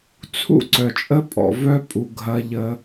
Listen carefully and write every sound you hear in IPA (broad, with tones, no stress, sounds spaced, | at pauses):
t͡sʰ ṵ˦ ǀ œ˨ t͡ʃʼ ə˦ pʼ ɔ̰˨ v œ˦ pʼ u˨ ɡʱ ɐ˦ ʎ ə˦